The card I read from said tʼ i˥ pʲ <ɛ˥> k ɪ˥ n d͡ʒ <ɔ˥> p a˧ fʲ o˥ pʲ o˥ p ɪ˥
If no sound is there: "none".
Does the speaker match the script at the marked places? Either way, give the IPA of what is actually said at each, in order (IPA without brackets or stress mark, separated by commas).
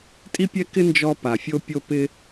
ɛ˥, ɔ˥